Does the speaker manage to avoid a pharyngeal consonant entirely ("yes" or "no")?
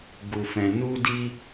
yes